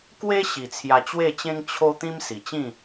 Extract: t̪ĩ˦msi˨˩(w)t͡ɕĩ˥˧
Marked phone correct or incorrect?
incorrect: none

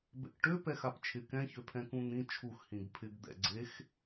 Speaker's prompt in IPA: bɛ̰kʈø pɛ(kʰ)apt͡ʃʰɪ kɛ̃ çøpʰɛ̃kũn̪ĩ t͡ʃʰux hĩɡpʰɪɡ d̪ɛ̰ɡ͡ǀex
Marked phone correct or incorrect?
incorrect: x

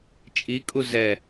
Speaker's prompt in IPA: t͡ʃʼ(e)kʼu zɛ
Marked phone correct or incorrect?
incorrect: i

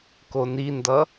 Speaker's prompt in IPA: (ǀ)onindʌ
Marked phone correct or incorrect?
incorrect: k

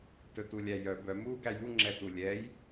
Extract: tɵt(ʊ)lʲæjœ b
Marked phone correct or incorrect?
incorrect: u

